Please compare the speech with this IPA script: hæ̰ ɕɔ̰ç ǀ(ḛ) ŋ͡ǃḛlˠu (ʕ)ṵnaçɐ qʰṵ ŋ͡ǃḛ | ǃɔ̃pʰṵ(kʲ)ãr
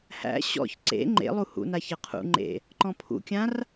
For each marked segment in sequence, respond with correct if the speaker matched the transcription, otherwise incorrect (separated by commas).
correct, incorrect, correct